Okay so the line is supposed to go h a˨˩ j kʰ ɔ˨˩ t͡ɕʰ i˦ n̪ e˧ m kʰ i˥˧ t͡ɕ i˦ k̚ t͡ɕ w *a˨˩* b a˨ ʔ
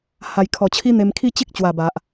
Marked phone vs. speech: correct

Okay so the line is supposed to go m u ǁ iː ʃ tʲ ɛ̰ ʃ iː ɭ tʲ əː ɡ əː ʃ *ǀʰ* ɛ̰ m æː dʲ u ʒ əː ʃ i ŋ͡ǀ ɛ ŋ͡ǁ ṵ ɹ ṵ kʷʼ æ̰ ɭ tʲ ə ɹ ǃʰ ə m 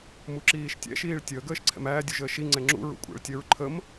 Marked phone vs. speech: correct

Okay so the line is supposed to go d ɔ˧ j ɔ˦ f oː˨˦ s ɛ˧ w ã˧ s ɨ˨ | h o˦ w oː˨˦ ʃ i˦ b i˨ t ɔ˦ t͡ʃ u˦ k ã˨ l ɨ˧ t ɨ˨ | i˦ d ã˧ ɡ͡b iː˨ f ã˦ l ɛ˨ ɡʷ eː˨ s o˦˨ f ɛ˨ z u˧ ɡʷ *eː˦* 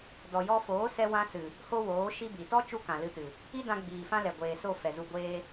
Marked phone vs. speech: correct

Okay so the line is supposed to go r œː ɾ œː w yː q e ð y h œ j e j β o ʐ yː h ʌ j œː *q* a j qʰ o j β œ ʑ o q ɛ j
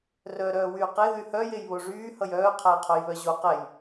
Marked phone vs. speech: incorrect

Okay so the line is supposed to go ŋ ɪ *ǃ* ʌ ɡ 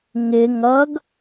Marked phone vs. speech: incorrect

